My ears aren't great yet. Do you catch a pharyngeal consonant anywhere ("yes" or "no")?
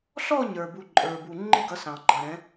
no